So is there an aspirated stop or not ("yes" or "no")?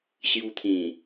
yes